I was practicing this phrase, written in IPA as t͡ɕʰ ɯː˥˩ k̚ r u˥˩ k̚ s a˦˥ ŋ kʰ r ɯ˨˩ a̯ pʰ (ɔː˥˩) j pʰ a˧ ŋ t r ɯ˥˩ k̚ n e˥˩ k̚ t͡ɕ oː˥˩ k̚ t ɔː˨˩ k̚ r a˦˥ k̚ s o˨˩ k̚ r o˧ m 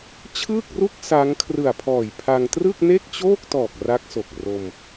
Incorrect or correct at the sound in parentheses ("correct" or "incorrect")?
incorrect